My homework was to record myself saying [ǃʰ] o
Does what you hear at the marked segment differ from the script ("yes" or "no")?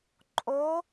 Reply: yes